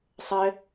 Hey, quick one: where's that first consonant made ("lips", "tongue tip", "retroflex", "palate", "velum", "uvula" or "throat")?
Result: tongue tip